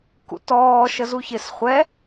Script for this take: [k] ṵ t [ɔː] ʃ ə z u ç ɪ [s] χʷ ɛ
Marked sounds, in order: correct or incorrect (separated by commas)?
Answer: correct, correct, correct